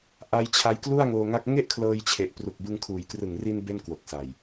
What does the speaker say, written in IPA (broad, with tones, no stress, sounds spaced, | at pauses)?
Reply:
ʔ a˧ j t͡ɕʰ a˧ j k l u˥˩ a̯ ŋ oː˧ ŋ a˦˥ k̚ ŋ e˥˩ ʔ kʰ l ɤː˧ j t͡ɕʰ e˨˩ ʔ p r u˨˩ k̚ b ɯ˧ ŋ kʰ uː˩˦ j k r ɯ˨˩ ŋ r i˧ n b e˥˩ n k w o˨˩ k̚ s a˨˩ j